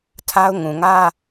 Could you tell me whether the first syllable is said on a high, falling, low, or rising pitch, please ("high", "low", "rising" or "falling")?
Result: high